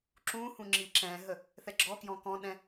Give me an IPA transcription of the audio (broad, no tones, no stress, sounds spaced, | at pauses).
ǁ ũː h ũ ŋ͡ǁ iː ǁ ɛ̃ː ɦ ə | θ ɛ ɡ͡ǁ ɔ k j ɔ̃ k ɔ̃ ɗ ɛ̃